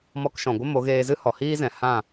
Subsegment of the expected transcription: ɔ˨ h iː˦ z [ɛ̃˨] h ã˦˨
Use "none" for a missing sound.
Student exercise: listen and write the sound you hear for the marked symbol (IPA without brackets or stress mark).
ɛ̃˨